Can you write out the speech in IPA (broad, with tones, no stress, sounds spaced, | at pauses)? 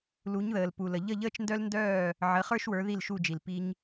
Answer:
l u˩˥ ɲ ð əː˩ l p u˩ l ə˩ ʎ ə˥˩ ʎ əː˥ t͡ʃ n d œ˥ l n d œː˥˩ | ʕ ə˩˥ χ ə˞˥ ʃ w ə˞˩˥ ð i˥˩ l ʃ u˥˩ d͡ʒ i˩ l p i˧ ɲ